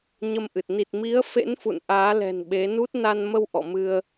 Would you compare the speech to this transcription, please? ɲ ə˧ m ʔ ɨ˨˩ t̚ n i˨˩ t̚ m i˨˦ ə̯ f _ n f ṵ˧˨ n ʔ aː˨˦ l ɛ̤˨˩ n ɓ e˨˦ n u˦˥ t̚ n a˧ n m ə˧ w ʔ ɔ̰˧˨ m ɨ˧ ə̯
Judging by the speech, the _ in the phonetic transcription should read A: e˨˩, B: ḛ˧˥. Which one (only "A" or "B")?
B